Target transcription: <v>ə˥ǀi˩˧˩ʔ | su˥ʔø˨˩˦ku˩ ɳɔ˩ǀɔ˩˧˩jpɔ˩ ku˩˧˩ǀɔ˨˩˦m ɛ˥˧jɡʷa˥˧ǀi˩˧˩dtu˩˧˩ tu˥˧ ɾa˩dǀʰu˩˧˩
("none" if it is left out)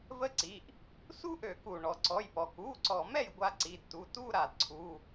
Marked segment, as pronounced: v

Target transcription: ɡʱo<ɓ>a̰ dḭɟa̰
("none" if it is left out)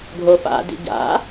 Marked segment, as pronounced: f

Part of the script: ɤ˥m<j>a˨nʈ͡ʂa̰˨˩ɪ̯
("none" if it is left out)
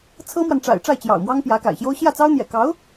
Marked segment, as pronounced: w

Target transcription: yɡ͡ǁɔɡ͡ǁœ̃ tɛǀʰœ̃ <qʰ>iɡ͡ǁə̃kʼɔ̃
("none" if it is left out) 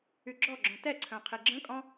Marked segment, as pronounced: qʰ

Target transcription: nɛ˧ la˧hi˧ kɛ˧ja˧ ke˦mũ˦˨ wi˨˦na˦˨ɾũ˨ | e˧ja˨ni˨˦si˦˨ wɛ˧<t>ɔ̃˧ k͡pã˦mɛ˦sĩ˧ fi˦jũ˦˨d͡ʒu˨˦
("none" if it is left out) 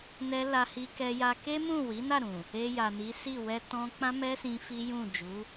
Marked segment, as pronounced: t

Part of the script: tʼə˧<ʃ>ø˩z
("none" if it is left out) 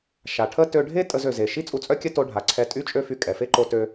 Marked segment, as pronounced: z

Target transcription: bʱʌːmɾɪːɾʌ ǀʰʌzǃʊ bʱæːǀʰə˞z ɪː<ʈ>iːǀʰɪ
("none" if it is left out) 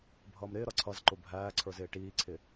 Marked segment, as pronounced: ʈ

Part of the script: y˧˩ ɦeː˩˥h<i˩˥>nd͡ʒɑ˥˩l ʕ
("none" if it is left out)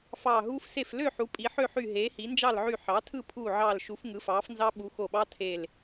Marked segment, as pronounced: i˩˥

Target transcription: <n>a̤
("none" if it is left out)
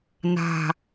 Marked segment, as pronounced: n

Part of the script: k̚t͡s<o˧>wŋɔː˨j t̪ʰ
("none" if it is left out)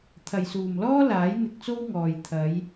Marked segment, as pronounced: o˥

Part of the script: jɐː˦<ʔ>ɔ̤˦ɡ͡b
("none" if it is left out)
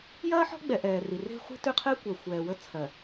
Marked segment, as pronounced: ħ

